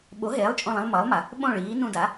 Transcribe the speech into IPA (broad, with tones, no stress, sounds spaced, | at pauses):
ɓ o˩˥ ɦ eː˩˥ lˠ t͡ʃʼ õ˧˩ lˠ ĩ˧ lˠ m ʌː˩˥ lˠ m a˩˧ | ɓ õ˥˩ ɭ iː˩˥ n ũ˧˩ d a˩˥